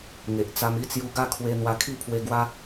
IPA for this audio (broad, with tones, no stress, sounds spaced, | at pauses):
ŋ e˨ ʔ t͡s a˧ m i˦ t͡s j u˧ ɡ a˥˧ kʰ w e˧ n̪ w a˧ kʰ i˥˧ pʰ w e˧ ɡ w a˦